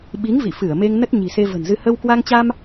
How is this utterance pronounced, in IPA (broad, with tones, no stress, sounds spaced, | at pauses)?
ɓ i˨˦ ŋ v ḭ˧˨ f ɨ˧˩ ə̯ m e˧ ŋ n ə˦˥ t̚ ɲ i̤˨˩ s e˧ v ə̤˨˩ n z ɨ˧ h ə˧ w k w a˧ ŋ t͡ɕ a˧ m